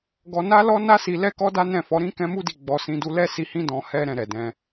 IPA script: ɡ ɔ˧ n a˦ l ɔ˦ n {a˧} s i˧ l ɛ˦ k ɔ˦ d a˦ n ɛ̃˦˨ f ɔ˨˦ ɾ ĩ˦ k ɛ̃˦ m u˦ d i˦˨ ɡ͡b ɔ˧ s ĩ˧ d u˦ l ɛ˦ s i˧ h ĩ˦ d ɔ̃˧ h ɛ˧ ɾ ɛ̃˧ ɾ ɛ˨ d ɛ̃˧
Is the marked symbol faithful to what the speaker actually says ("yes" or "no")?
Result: no